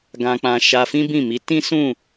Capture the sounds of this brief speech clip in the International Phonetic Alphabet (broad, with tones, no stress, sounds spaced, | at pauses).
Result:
ɡ ã˧ k͡p ã˧ ʃ a˧ f ĩ˦ b ĩ˦˨ m i˨˦ t ĩ˦ s ũ˦˨